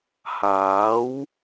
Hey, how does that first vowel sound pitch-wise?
rising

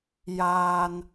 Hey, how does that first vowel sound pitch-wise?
low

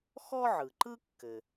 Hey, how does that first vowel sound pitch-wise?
high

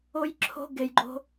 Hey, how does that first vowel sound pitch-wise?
high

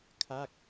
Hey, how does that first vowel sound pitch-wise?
falling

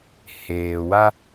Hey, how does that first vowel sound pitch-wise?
low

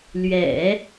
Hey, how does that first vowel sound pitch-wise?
low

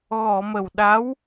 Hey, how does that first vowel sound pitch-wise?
low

